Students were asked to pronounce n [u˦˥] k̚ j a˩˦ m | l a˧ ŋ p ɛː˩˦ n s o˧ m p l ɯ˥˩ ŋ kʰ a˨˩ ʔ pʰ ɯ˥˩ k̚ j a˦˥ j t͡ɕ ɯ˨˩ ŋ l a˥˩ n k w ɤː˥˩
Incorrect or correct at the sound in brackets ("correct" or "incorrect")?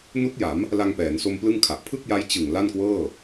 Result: correct